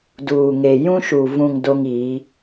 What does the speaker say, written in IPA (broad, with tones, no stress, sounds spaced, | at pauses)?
d uː˨ ŋ e˨ j ũ˦ ʃ u˨ v ũ˨ ŋ d o˦ ŋ iː˨˦